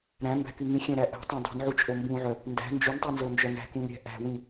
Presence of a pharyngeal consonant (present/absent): present